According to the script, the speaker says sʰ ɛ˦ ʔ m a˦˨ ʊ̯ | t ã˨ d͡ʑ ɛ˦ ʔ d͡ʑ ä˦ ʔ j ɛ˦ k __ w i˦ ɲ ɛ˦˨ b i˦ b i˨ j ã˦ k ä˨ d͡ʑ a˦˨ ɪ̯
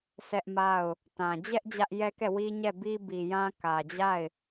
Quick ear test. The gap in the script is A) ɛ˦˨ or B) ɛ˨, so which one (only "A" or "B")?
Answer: A